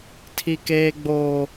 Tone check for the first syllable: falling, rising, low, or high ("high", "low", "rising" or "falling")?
high